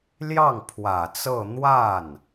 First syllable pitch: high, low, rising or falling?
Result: falling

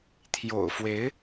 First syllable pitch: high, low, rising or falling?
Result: low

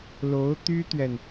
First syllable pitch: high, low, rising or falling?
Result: rising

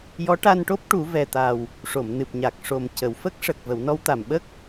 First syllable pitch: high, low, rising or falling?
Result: rising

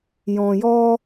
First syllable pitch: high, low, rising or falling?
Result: low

